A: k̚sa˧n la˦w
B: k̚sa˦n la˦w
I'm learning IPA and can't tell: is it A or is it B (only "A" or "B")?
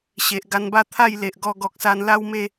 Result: A